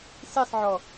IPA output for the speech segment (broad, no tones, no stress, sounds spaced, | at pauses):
s i sˤ ʕ ɔ